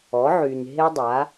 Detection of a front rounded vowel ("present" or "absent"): present